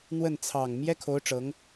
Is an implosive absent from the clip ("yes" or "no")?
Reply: yes